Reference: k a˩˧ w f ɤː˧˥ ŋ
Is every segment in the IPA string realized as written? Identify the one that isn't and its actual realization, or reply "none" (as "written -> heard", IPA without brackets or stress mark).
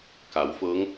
none